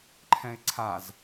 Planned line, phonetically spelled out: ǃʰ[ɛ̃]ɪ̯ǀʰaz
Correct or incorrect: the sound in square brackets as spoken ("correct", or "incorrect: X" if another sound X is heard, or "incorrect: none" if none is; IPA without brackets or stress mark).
correct